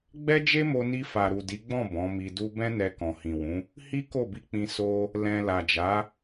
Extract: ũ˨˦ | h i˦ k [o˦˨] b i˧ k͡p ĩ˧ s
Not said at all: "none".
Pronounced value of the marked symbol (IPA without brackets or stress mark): o˦˨